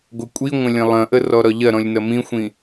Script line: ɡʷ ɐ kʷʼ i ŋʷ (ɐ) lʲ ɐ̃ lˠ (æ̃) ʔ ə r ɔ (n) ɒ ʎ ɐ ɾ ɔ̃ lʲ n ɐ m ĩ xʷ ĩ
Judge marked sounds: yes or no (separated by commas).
no, no, no